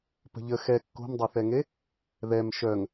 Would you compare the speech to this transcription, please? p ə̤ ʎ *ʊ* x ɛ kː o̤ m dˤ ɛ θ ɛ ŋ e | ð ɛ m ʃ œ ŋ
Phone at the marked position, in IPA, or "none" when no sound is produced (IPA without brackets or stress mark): ə